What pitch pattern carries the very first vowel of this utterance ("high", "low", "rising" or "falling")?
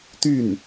falling